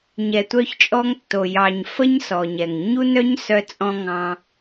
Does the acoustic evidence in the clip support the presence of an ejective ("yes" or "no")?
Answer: yes